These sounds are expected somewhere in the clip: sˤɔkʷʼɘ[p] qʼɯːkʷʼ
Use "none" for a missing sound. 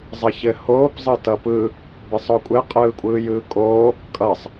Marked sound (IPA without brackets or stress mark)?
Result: none